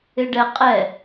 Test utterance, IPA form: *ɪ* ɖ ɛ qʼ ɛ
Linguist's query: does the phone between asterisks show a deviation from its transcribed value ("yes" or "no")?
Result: no